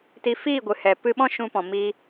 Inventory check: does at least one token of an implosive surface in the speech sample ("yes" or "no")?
yes